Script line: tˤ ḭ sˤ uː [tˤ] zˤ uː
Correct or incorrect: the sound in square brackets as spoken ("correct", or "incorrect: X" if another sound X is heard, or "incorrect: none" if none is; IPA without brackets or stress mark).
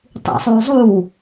incorrect: none